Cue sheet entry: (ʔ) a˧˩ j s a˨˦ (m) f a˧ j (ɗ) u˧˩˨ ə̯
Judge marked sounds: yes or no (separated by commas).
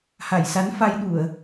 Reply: no, no, yes